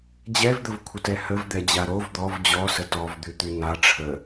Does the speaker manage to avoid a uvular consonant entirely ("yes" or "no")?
yes